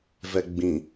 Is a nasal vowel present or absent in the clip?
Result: present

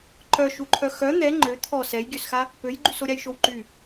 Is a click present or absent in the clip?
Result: present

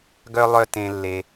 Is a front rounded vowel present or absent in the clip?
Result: present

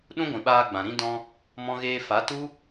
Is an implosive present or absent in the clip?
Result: present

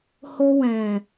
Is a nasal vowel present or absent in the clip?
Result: present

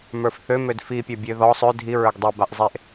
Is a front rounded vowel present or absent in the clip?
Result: present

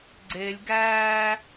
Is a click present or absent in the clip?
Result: present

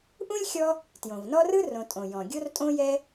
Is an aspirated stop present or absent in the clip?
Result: absent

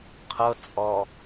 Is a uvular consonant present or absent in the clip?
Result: present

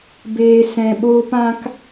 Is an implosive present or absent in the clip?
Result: present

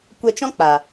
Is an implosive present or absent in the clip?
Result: absent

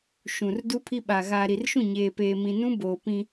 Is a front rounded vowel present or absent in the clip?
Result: absent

